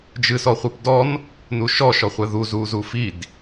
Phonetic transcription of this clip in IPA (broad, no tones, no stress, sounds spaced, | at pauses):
d͡ʒ ɨ s ɔ χʷ ɨ p d ɔ n | n u ʃ ɔ ʃ ɔ χʷ ɛ ð u z u z u f i d